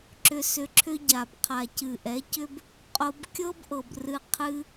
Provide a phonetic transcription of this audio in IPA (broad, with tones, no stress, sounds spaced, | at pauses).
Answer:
ǁ ʏ˧ s ʏ˧ ǁʰ ʏ˦ ɟ a˨ b qʰ a˨ c ɨ˨ ʔ ɛ˨˦ c ʏ˦ b | qʼ o˧ b kʲ ɤ˦ b ʔ ɤ˨ b r ɨ˧ qʰ ɨ˦